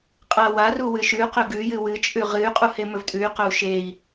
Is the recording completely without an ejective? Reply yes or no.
no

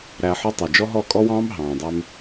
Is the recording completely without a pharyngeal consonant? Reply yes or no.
no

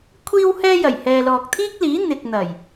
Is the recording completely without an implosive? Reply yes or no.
yes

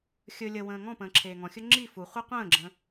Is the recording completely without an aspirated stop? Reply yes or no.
no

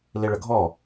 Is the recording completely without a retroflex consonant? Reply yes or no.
no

